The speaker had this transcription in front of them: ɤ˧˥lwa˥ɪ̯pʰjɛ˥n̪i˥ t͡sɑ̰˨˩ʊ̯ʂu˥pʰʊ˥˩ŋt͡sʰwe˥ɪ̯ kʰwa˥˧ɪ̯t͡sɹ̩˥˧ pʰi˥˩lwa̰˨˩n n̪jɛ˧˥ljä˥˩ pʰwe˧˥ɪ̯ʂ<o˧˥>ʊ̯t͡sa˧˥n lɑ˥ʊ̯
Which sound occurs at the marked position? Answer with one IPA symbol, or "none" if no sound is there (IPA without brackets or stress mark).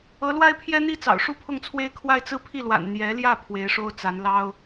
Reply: o˥